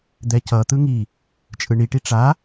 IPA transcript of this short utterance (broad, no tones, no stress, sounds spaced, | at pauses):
d̪ ɛ c ʌ t̪ ɯ ŋ i | t͡ʃʼ ɯ ɳ i ʈ i ʈ͡ʂ a